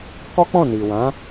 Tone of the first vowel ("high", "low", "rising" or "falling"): high